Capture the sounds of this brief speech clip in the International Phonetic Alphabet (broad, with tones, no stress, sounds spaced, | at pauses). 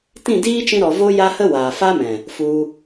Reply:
t ĩ˦˨ d iː˦ t͡ʃ ĩ˧ ɾ ɔ˨ v o˧ j a˦ h ə˦ w aː˨ f a˦ m ɛ̃˨ | f u˧